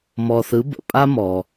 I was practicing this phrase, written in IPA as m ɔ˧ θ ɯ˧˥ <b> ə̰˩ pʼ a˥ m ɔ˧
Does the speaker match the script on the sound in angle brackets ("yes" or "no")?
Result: yes